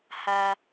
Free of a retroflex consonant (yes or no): yes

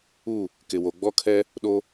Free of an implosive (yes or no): no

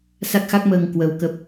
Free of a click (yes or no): yes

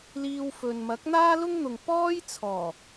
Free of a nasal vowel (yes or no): yes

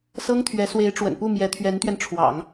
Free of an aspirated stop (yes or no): no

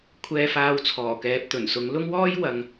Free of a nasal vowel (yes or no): yes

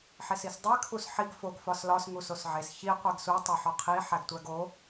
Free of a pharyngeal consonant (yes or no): no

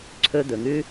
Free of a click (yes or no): no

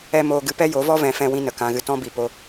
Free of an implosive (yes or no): yes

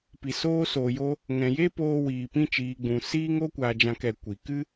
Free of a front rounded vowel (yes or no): yes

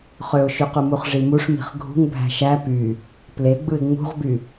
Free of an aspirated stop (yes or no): yes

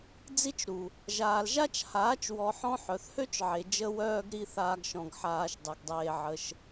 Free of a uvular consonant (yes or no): yes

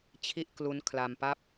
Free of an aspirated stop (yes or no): no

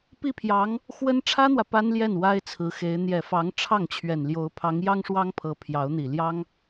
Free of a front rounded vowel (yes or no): yes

